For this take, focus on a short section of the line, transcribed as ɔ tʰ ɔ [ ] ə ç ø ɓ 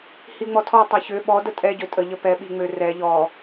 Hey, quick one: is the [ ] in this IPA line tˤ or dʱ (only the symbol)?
tˤ